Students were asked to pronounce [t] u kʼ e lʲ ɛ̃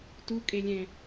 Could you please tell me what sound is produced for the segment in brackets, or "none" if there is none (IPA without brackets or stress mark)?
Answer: t